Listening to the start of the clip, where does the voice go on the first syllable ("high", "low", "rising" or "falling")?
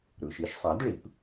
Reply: low